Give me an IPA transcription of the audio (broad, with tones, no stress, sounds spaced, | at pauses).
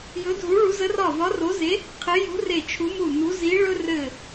j ɵ˧˥ dʱ u˧˥ ɭ u˧˥ z ə˧˥ r ɒ˦˨ v ɒ˧˥ r o˧˥ z e˧˥ | qʰ ɘ˧˥ j ṳ˧˥ r e˦˨ t͡ʃʰ u˧˥ m u˦˨ n u˧˥ z i˧˥ ɭ ɵ˥ r ɘ˦˨